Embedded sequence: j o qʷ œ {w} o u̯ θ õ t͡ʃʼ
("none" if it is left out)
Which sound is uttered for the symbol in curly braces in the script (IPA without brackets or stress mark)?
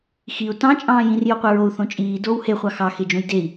ɹ